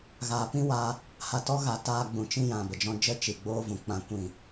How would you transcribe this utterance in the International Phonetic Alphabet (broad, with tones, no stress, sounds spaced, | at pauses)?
ɣ aː˨ p ĩ˦ w a˧ | h a˧ t ɔ˦ ɣ a˧ t aː˧ ɡ͡b ũ˨ t͡ʃ ĩ˧ j ã˨ b ə˨ d͡ʒ ɔ̃˧ d͡ʒ ə˦ t͡ʃ i˨ ɡ͡b oː˦ v ũ˨ k͡p ã˧ kʷ ĩ˦˨